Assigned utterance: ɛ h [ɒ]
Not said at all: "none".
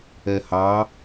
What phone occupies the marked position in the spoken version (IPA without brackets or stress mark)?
ɑ